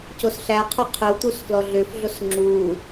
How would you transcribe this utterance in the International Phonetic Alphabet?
c o s ɬ æ qʰ o qʰ ʏ w t̪ u s f l ɔ ɮ ʏ f ɮ o s ŋ͡ǁ u

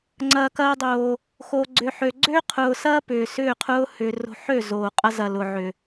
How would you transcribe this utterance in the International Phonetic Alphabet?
ŋ͡ǀ ɐː˨ k ɐː˧ dˤ oː˨ | x o˨ ɡ͡ǀ ʏ˨ ħ ø˨ ɡ͡ǀ ø˦ qʰ ʊː˨ s ɐː˦ p ʏː˨ s ʏː˦˨ qʰ ʊː˦ h ʏː˨ r o̤˧ ħ ø˦˨ z oː˨ qʼ ɐ˦ z ɐ˨ l ʊ˨ ʕ ʏ˨

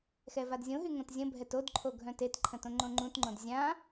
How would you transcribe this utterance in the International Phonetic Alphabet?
x ɛ v a d zʲ õ ɦ y ŋ õ t zʲ ə̃ bʱ ɛ t o d ǃʰ o ɡʱ œ̃ t e t ǃʰ ə̃ t õ ŋ͡ǃ õ ŋ͡ǃ ũ t ŋ͡ǃ õ d zʲ ã

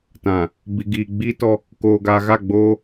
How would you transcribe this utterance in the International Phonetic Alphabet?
t ã˨ | b i˨ ɡ iː˨ ɡ͡b iː˦ t ɔ˦ | k oː˨ ɡ aː˨ ɣ a˦˨ ɡ͡b oː˦

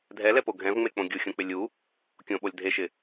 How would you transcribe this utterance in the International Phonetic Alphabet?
dʱ ɛ l ɛ p o ɡʱ ɛ̃ v ŋ͡m e k͡p õ ɡʲ u xʲ õ k͡p ɪ lʲ u | kʲ õ ɓ o lʲ dʱ e ʃ ɪ

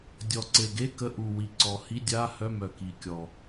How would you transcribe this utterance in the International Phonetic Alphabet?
dʲ ɔ˨˩ ǀ e˨˩ ɡ e˧˥˧ k ə˧˥˧ ʔ u˨˩ w i˨˩ ǀ ɔ˨˩ h i˧˥˧ dʲ a˧˥˧ h œ˧˥˧ m œ˨˩ k i˨˩ kʲ ɔ˨˩

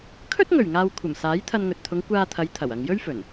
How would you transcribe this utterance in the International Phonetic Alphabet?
kʰ ɵ˥ t̚ ŋ ɵ˨˩ ɥ ŋ aː˨ w kʷʰ ɐ˨˩ m s aː˨˥ j t̪ʰ ɐ˧ n ŋ ɵ˨ t̚ t̪ʰ ʊ˨˧ ŋ kʷ aː˧ t̪ʰ ɐ˨˧ j t̪ʰ ɐ˨˩ w ɐ˨ ŋ j ɵ˥ ɥ f ɵ˨˩ n

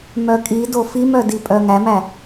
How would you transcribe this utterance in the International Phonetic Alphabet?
m œ kʼ i d o f i m œ d i pʼ œ ŋ æ m æ

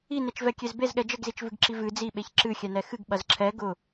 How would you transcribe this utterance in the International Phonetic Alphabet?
i n e t͡ʃ v ɛ kʲ e z b e z ɠ ɛ d͡ʒ ə ɡ z i t͡ʃ v ɨ ɡ ǁ i v ɨ d͡z i ɓ e ç ǁ ɨ xʲ ɛ n ɛ x ɨ ɡ ɓ ɐ z ǁʰ ɛ ɡ ʊ

